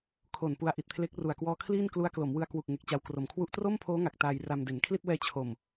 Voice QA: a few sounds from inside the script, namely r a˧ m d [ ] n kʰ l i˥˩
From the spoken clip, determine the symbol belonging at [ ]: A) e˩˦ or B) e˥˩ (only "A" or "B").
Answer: A